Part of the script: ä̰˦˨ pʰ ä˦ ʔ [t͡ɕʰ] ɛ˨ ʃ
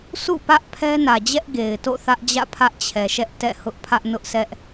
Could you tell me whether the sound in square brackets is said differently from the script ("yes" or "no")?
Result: no